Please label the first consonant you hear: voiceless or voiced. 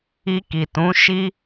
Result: voiceless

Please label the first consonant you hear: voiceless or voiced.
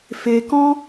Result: voiceless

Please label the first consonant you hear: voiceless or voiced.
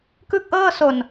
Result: voiceless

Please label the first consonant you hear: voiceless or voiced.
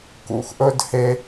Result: voiceless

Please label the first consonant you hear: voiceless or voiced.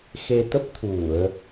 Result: voiceless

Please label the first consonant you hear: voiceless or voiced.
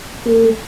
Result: voiceless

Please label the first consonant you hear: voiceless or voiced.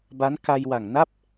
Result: voiced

